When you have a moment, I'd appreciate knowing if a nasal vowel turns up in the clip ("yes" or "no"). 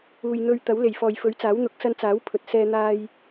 no